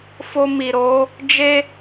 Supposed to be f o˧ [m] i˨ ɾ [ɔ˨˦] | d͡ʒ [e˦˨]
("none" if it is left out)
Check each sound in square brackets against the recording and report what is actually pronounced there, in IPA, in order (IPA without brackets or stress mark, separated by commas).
m, o˨˦, e˦